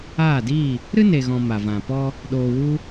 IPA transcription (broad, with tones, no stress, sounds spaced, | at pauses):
aː˦˨ d iː˦˨ | ɾ ɨ˦ n e˨ ɣ ɔ̃˨ m a˨ v ã˨ p ɔ˦ | ɗ oː˨ w u˧